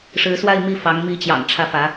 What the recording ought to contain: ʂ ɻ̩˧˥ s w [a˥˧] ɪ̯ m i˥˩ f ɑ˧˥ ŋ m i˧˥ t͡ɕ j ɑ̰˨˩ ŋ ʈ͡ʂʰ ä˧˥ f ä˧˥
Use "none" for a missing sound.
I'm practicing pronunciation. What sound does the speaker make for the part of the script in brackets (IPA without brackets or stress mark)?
a˥˧